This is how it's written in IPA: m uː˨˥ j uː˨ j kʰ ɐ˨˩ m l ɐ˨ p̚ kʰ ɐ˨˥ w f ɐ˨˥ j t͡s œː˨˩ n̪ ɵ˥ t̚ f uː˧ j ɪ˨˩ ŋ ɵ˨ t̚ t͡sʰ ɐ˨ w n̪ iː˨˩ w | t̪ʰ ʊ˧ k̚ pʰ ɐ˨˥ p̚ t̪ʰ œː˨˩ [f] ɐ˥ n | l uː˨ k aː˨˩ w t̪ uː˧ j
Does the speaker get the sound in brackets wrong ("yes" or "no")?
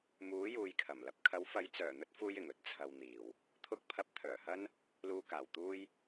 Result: yes